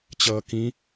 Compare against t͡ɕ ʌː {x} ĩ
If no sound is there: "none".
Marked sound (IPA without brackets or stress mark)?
k